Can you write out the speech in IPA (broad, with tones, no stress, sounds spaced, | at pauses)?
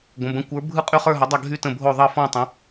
ɡʷ ə̃˩˧˩ b ə̃˨˦ kʷ ə˞˨˦ bʱ ɯ˦˨ qʼ y˦˨ χ ə˞˦˨ ɦ ʌ˨˦ dˤ ʌ˦˨ ɡʱ y˦˨ t ə̃˦˨ bʱ o˦˨ ðˤ ʌ˦˨ f ɔ̃˦˨ tˤ ə̃˨˦